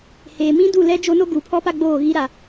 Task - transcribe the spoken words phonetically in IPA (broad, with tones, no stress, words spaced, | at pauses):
heː˨mĩ˦du˦˨lɛ˦ d͡ʒo˦no˦ ɡu˨pʰɔ˦pa˦ ɡ͡boː˦˨ɣi˦ ɾa˨